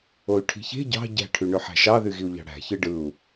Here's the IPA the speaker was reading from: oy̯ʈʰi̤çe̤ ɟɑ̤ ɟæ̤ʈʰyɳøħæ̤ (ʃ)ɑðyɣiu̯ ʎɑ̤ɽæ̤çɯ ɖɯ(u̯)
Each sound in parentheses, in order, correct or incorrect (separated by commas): correct, correct